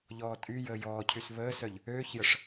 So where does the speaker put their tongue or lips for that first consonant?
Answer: palate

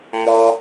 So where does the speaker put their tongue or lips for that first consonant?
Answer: lips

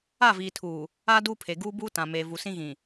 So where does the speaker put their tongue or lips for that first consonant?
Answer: lips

